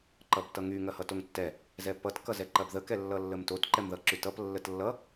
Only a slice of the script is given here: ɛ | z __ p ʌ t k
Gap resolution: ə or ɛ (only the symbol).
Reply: ɛ